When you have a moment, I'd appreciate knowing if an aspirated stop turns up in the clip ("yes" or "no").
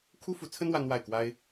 yes